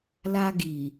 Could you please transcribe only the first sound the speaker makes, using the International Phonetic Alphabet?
l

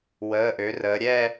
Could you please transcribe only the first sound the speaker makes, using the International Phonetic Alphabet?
w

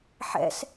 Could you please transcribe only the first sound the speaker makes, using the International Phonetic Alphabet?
ħ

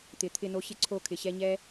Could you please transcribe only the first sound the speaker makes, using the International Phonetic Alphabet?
t̪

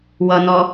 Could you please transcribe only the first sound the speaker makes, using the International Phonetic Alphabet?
w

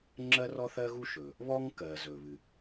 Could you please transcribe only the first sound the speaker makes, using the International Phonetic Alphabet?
ŋ͡ǁ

